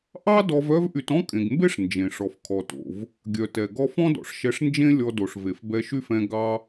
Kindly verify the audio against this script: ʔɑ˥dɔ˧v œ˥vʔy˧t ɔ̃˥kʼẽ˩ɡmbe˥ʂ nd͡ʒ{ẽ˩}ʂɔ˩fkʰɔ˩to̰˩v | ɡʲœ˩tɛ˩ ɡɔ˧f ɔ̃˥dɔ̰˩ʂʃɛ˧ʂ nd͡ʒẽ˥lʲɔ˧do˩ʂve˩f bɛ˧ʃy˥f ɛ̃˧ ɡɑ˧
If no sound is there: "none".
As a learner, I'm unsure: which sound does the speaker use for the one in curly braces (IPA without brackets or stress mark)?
ẽ˩